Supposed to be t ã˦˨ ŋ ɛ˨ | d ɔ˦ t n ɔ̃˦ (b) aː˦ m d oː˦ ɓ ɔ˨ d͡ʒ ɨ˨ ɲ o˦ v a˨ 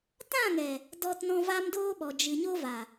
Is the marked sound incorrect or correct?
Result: incorrect